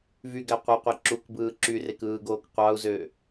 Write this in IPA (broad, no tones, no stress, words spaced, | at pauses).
vyɡæ qʷɯqʷi ǁukbɯː ǁyrekɯːɡoːk qʷɑu̯zø